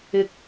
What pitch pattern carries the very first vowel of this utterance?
low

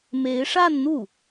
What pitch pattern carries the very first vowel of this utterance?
rising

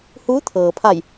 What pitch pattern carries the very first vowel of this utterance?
rising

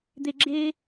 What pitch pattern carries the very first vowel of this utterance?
low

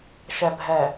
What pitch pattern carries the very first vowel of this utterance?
low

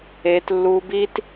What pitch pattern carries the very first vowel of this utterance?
high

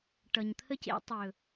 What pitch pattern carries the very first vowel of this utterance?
low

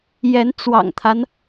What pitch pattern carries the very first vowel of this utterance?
rising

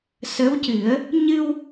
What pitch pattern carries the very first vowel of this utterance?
rising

